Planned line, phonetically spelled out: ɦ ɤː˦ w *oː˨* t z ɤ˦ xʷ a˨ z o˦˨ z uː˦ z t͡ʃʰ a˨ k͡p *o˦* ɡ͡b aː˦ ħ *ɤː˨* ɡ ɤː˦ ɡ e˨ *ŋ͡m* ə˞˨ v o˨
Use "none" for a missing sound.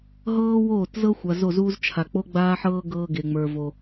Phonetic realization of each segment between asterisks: oː˦˨, o˦, ɤː˦, ŋ͡m

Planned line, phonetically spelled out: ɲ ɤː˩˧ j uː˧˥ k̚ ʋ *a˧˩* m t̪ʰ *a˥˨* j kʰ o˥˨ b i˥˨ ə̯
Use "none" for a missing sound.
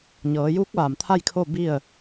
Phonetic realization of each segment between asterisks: a˧˩, a˥˨

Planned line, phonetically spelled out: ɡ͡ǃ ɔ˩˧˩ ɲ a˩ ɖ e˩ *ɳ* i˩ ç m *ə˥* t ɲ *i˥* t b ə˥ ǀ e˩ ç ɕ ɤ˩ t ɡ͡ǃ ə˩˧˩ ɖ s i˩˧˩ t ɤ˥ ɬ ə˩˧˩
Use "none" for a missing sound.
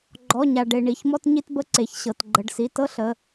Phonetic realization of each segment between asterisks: ɳ, ɔ˥, i˥

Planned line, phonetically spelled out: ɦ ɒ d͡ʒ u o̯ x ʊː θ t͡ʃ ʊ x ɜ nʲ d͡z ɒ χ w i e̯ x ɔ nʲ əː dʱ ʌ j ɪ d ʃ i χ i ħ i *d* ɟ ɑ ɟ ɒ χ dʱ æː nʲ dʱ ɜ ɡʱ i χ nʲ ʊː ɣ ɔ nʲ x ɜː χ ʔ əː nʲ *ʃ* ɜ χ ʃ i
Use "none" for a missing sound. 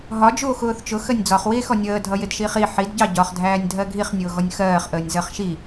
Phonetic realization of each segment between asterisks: d, z

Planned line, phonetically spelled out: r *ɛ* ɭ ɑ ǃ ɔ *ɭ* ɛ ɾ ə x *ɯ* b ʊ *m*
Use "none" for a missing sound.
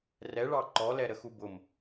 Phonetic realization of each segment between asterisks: ɛ, l, u, m

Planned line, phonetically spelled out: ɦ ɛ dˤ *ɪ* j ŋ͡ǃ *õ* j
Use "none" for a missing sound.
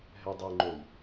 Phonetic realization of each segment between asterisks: ɛ, o

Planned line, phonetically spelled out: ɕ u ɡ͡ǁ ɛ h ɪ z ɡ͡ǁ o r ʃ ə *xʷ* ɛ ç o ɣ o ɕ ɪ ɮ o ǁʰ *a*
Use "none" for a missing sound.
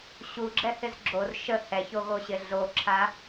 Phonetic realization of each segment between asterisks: h, a

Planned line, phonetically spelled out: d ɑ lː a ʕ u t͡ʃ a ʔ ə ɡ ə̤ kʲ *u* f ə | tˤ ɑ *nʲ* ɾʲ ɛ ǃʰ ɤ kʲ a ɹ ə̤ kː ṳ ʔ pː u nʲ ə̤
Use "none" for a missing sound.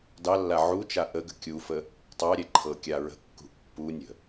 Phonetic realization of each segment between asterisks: u, none

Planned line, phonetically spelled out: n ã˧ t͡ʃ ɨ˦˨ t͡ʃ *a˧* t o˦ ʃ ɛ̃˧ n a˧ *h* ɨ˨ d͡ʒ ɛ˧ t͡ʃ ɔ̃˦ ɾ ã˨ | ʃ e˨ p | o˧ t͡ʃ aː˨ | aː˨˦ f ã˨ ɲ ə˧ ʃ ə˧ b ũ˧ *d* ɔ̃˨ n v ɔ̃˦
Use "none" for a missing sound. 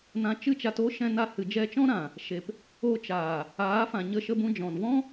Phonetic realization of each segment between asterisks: a˧, h, d͡ʒ

